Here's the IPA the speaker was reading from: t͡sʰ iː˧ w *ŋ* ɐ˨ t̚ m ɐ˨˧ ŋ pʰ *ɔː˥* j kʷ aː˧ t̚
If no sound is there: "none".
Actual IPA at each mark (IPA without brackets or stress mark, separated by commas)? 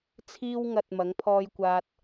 ŋ, ɔː˧